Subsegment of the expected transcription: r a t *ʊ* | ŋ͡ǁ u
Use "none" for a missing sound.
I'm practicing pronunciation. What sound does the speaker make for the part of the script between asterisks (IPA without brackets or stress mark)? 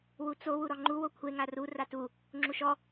u